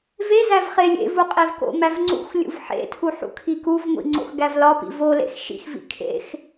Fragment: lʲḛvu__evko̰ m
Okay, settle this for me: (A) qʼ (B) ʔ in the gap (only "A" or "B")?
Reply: A